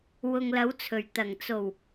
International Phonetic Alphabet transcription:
wʊ˨ŋlɐ˨˥wt͡sʰɵ˨˩ɥ t̪ɐ˨˩ŋ t͡so˨˩w

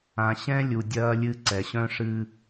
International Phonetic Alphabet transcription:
ã˩ɕɛ̃˦lʲu˩ dʲɐː˦lʲɨ˦ ǀɛ˩ɕœ̃˦ ʂɨ˦

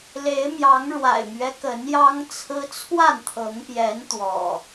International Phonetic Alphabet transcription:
le˨˦ɪ̯mjɑ˨˦ŋ ɻwa̰˨˩ɪ̯mɥɛ˦kə˨˦n jɑ˦ŋt͡sʰɹ̩˦ t͡sʰwa˥˨nt̪ʰɤ˨˦ŋpjɛ˨˦n t̪wɔ̰˨˩

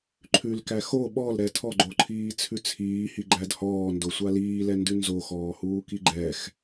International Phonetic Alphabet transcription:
ǃʰʉlkæ xo ɓɔlɾɛ tʰɔɡ͡ǃoǃʰiːt͡sʰʉ t͡sʰiːhiɡ͡ǃæd hɔːndosʷa liːlɛndʉ nzoxɔːhuːki ɡ͡ǃɛx

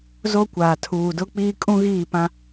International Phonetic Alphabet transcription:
zo˦kʷaː˨ tʰuː˨dʊ˦k͡piː˦ kʼũ˦ɣiː˦˨pã˦

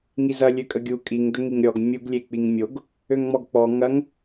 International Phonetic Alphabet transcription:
ŋizɐ lʲøkʼəɡʲu kʼiŋ dəŋiŋɾʲɔɡ mʲuɡ lʲek͡piŋmʲoɡ | øŋŋ͡mɔɡk͡pɔ ŋɐŋ

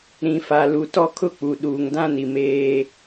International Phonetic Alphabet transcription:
ɾĩ˨fa˨ lu˨tɔ˦kʰʊ˦k͡pu˨ ɗuː˨ŋdã˦ni˨ meː˦

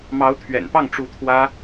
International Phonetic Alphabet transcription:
mɑ˧˥ʊ̯t̪ʰɥɛ̰˨˩npɑ˥˩ŋ ʈ͡ʂu˧˥ t̪ʰwä˥

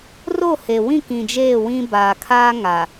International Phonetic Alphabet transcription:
ro˦˨he˨wĩ˦˨ kĩ˨d͡ʒeː˦˨ wĩ˦ baː˨kʰaː˦ ŋa˨

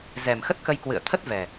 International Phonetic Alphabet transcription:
zɛ˨˩mxə˦˥t̚kə˧jkwɨ̰˧˨ə̯ t̪ʰə˦˥t̚vɛ˨˩

